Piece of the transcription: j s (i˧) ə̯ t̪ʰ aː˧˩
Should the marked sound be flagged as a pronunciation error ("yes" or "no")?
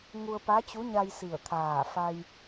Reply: yes